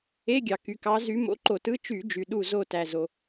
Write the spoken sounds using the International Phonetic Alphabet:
e˧˥˧ɡʲɑ˩ky˩kɑ˨˦ zy˨˦ mo̰˧˥˧ǃo˧˩˧tɯ˧˥˧ t͡ʃy˧˩˧ d͡ʒy˩ɗu˧˩ zo˧˩tæ˩ zo˩

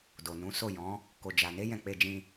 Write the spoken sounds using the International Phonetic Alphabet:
do˨ nũ˨˦ so˦˨jɔ̃˨˦ | ko˨d͡ʒa˨ne˨˦ jɛ̃˧k͡pe˧d͡ʒĩ˧

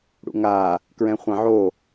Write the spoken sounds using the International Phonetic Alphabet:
ɽṵŋa | kɹɛ̃χʷãʕo

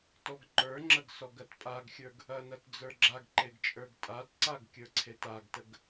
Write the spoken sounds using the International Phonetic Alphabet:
tɔɡǃə˞ŋ͡ǁɐɡ sɔɡɐtpʼaɡxʲə˞ɡ | ɐnɐt d͡zə˞ɡ͡ǁaɡǃeɡ t͡ʃʼə˞ɡtʼatǀaɡ kʲə˞ǀʰetaɡtəɡ

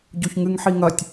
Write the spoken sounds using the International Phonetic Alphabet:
ɟoçŋɨŋħiŋɐtʲ

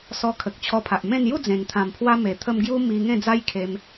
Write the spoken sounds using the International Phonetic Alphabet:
sɔ˧kʰə˨k̚ t͡ɕʰɔ˧pʰa˨ʔmẽ˥˧n ju˥˧d͡zẽ˨˩ŋ t̪ʰã˨˩mpʰwa˧me˨˩t̪ʰə˧m ɡju˦mi˧ŋẽ˥˧ d͡za˦jkʰe˧m

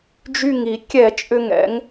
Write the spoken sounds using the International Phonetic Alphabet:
d͡ʒy˧˩ŋi˧˩˧ kʲɛ˧˩˧t͡ʃʼʏ˧˩ŋ ɛ̰˧˩˧ŋ

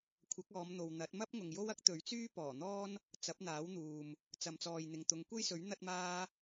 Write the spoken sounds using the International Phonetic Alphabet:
kʷʰɐ˨˥k̚ɔː˨˧mn̪o˨wn̪ɐ˨˥t̚ mɐ˥p̚ŋʊ˨ŋ jo˥wɐ˥k̚t̪ɵ˨˥ɥt͡syː˥ pɔː˨˩ n̪ɔː˥n | t͡sɐ˨˥p̚n̪aː˨˥wn̪uː˨m | t͡sɐ˨mt͡sɔː˨jn̪ɪ˨ŋ t̪ʊ˨˧ŋkʷe˥jsɵ˨˥ɥ n̪ɐ˥t̚maː˥

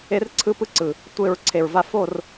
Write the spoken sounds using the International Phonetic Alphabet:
e˦rǀʰɯ˦pɯ˦ǀɯ˨ | tʷe˦˨ɹ ǀʰe˨ɹva˦ fo˦˨r

